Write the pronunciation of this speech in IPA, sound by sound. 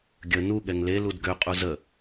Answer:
ɡʲə nu ɠɛŋle ludɡø qʼuzə

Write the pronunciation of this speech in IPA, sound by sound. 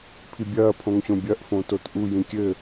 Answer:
pʰibʲɐː pʰõŋɕõbʲɐʔ fõtotʔu jĩkʲɘ

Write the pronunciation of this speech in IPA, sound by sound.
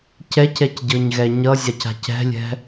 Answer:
cɛcɛcɟɤɲɣɛ ɲʌzʲaca̤c ɛ̤lʲɛ̤

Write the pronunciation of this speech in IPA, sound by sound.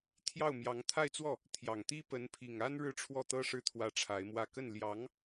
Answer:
t̪ʰjɑ˥˩ʊ̯mjɑ˧˥ŋ t̪ʰa˥˧ɪ̯t͡swɔ˥˩ | t̪ʰjɑ˨˩ŋt̪i˥ pə˧˥npʰi˨˩ŋa˥n ɻɻ̩˥˧ʈ͡ʂʰwɔ˥˩t̪ɤ˥ʂɻ̩˥˩ t̪ʰwä˥ʈ͡ʂʰa˧˥ɪ̯mwä˥˧ kə˥˩n ljɑ˧˥ŋ

